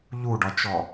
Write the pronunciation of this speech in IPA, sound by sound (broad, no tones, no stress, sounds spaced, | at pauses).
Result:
ʎ u ɖ ɒ t͡ʃ ɔ